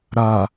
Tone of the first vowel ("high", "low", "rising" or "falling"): low